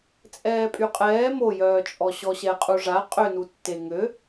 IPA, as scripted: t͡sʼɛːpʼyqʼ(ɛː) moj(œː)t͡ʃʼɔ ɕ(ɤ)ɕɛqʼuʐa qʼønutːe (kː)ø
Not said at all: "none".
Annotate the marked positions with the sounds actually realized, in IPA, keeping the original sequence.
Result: ɛː, œː, ɔ, ŋ

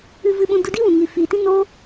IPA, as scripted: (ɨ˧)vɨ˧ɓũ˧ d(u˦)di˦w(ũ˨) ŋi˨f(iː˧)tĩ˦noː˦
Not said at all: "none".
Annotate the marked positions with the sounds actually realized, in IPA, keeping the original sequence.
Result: ɨ˧, u˧, ũ˨, iː˨

